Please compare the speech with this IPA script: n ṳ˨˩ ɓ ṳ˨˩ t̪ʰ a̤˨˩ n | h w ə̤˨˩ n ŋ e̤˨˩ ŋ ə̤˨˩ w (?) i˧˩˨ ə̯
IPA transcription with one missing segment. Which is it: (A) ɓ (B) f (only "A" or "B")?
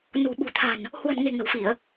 B